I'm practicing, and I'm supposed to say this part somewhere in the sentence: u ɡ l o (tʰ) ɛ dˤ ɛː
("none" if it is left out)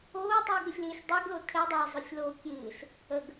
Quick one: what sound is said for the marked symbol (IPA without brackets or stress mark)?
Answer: tʰ